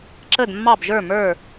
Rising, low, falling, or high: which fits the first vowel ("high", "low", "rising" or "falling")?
falling